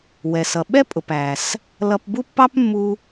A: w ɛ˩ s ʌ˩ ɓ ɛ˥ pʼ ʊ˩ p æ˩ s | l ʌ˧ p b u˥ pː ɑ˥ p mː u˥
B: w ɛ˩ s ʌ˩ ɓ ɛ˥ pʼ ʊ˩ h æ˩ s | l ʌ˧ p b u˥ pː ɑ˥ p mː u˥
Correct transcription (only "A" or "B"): A